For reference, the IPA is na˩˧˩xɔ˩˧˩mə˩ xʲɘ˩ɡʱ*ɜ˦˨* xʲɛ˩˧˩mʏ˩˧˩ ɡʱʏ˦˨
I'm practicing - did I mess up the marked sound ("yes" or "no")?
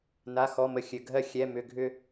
no